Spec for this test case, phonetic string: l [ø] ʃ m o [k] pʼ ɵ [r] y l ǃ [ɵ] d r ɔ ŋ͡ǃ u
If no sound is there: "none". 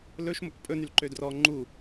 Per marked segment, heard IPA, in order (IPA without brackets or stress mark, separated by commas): ɵ, k, n, ø